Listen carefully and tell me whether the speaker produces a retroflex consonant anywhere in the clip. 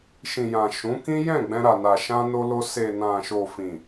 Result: no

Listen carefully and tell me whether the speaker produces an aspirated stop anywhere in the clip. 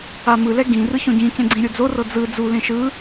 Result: no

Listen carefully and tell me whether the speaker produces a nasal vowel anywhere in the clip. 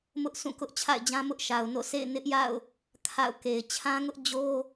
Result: yes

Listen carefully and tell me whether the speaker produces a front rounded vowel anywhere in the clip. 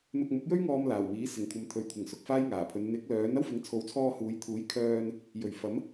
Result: yes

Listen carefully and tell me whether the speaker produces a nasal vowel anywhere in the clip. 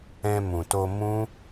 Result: yes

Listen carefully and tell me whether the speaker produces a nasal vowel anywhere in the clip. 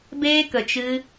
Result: no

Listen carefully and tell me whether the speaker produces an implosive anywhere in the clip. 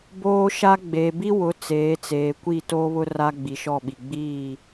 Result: yes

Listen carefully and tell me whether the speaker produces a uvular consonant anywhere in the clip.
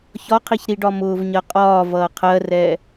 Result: yes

